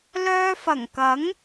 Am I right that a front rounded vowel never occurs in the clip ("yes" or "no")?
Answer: no